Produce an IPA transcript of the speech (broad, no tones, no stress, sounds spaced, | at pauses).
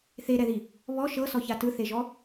θ e ɾ ɛ ð i | β ɔ ʃ ɤ s ɔ ç a t ɯ θ e ʒ ɔ